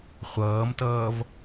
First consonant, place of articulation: uvular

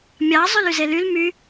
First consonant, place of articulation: labial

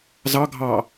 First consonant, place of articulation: alveolar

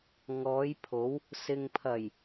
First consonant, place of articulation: velar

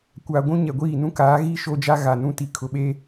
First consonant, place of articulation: velar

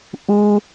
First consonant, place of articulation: glottal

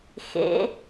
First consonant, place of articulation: velar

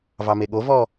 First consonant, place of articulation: labial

